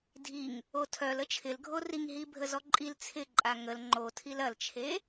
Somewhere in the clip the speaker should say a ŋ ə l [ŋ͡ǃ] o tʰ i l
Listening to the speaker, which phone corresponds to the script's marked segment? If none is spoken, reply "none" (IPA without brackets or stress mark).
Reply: ŋ͡ǃ